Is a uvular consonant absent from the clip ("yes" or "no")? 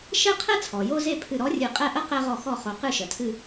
no